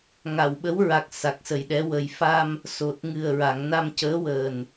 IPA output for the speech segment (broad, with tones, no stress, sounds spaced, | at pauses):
ŋ a˨˩˨ w ɓ ə˧˥ w ɹ a˨˩ k̚ s a˨˩ k̚ s ə˨˩ j ɗ ɛ˧˥ w ə˨˩ j f a˧ m | s o˨˩ t̚ ŋ ɨ˨˩ ə̯ ɹ a˨˩˨ ŋ n a˧ m c əː˧˥ w əː˨˩ n